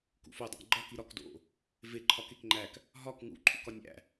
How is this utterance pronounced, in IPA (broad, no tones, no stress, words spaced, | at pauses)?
kṵfodˤæ̰ ɡ͡ǃɒk iɾɒk do̰ | ve ǃʰɒkekŋ͡ǃæk | ɦɒk ŋṵǃʰṵk ɒnʲæ̰